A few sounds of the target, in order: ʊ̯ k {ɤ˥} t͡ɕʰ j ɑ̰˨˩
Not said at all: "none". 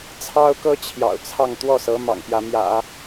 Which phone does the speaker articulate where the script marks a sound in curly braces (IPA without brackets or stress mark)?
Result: ɤ˥